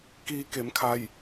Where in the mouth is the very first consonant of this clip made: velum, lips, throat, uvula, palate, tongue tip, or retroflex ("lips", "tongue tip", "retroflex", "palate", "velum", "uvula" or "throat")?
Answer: velum